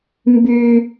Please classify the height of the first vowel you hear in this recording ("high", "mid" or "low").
high